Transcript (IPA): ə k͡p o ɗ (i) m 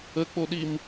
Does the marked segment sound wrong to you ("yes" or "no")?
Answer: no